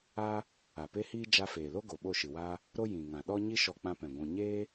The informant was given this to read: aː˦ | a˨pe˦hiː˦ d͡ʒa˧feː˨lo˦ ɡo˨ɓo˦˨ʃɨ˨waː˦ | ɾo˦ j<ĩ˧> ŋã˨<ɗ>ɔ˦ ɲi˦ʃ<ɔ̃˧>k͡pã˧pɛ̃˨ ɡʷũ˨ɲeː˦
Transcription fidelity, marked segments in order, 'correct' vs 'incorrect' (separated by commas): incorrect, correct, incorrect